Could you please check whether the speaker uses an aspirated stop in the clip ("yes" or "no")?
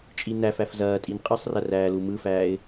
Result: no